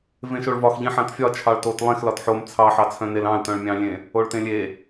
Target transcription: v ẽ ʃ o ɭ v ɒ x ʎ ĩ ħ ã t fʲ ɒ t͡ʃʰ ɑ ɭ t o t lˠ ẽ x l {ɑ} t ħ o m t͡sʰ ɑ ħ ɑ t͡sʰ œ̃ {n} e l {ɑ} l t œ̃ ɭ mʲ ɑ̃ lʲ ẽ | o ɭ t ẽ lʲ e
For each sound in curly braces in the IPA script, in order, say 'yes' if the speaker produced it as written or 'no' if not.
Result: no, yes, no

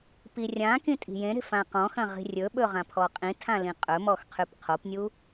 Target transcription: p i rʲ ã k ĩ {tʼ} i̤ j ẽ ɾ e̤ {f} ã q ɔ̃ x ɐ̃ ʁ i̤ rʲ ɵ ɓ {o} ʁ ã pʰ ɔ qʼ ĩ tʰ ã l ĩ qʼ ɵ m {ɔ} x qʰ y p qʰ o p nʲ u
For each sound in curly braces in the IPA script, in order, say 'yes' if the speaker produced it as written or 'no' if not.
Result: yes, yes, no, yes

